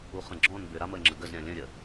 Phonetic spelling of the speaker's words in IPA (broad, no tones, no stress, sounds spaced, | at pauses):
u χ ə̃ ɡ͡ǁ ɔ̃ n b ʏ ɾ a m ə ŋ͡ǁ ə ɡ ə z ɾʲ ã lʲ ə̃ ɾʲ ə